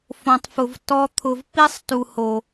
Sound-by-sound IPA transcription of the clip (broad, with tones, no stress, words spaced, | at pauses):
fõ˨tˤfʊ˨v tɔ˧ t̪ʰʊ˨vpi˦sˤtu˨ho˨